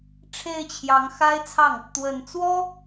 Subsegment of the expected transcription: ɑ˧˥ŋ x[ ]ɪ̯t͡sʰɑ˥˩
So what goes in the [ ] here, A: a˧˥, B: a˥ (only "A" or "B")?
B